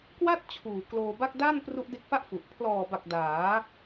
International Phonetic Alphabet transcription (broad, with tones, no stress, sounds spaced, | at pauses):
k w a˥˩ t̚ t͡ɕʰ uː˨˩ k l oː˧ b a˥˩ k̚ d a˥˩ n p r u˦˥ ʔ d e˦˥ k̚ f a˥˩ ʔ f u˨˩ ʔ pʰ l ɔː˨˩ b a˨˩ k̚ d aː˩˦